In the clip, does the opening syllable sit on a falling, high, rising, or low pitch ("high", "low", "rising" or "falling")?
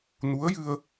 rising